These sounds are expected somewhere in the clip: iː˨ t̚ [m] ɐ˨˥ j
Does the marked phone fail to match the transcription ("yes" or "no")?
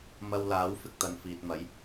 no